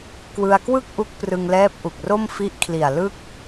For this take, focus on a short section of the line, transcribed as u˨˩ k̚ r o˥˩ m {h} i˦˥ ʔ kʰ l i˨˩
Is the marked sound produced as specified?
no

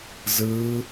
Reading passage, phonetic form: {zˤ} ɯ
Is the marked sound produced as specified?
no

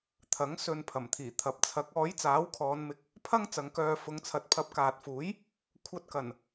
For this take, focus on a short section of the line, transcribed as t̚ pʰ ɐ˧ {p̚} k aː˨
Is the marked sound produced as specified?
yes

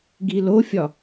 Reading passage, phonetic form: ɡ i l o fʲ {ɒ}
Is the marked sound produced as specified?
yes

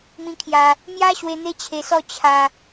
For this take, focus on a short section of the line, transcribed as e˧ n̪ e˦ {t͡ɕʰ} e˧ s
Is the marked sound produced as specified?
yes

